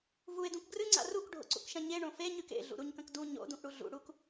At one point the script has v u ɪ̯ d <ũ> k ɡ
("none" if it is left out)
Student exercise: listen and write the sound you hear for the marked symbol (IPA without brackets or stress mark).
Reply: ũ